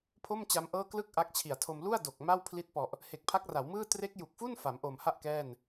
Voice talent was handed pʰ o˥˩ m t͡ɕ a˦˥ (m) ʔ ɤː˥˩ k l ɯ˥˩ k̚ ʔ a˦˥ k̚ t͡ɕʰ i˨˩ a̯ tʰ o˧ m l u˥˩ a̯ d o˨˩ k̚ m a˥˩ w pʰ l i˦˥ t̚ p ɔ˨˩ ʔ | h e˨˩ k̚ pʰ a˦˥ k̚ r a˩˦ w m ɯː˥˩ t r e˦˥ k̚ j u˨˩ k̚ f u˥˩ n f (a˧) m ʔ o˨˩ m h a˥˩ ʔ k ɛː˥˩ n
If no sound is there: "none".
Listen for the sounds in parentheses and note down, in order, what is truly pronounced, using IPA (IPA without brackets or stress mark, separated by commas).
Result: m, a˩˦